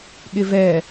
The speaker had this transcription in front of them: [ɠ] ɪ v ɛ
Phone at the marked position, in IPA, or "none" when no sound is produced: ɠ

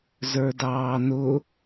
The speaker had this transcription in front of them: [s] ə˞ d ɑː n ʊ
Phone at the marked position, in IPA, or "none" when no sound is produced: z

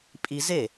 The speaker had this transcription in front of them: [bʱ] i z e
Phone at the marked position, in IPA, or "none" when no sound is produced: pʼ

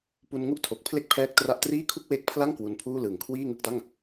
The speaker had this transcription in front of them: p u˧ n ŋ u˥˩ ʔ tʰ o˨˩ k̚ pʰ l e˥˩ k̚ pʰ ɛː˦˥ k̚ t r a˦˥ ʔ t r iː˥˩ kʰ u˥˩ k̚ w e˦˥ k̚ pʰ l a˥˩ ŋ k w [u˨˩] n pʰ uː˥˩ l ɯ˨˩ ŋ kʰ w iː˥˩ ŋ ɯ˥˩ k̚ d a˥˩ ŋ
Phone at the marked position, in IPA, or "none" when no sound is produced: u˧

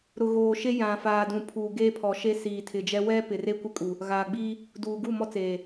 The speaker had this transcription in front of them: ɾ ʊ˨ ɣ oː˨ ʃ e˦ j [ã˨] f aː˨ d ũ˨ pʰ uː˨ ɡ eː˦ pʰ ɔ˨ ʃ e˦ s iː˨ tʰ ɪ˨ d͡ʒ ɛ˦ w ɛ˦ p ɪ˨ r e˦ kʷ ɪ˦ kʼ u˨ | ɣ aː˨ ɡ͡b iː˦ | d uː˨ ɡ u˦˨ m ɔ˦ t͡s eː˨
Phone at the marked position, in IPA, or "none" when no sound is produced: ã˨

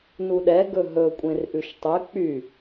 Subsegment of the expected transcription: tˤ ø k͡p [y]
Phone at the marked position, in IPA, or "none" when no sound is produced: y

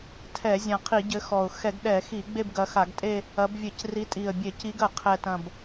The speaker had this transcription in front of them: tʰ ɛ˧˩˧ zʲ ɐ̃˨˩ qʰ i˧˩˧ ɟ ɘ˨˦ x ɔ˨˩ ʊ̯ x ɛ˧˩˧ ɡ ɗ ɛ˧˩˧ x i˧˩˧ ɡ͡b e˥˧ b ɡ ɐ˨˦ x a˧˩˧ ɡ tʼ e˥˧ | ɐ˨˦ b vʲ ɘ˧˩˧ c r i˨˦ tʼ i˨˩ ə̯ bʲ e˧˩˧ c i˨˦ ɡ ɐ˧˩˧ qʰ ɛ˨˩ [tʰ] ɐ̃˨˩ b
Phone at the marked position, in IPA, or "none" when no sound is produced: t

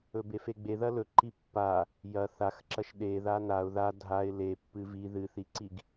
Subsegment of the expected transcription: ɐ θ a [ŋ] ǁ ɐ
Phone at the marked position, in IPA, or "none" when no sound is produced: x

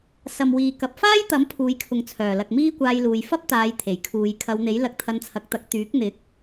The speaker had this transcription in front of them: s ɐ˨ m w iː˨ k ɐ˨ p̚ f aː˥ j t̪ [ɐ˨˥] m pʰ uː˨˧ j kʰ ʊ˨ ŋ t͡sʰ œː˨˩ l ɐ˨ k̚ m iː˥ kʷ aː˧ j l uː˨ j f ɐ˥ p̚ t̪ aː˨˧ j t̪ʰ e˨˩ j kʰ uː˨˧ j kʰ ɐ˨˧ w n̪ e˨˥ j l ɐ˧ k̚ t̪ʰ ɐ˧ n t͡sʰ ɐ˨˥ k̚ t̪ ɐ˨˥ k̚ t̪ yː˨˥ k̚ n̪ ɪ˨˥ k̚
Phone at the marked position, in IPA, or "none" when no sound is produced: ɐ˨˥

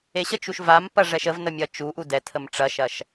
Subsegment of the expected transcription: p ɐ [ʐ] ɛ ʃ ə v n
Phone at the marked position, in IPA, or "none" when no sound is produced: ʐ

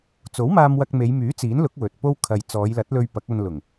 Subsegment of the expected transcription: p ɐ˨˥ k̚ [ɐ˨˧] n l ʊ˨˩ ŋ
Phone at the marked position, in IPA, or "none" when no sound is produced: ɐ˧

